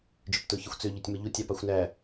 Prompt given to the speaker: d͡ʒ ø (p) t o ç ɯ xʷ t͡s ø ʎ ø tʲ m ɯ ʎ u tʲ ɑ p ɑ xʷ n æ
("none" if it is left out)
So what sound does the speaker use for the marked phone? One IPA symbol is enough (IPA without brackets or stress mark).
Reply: p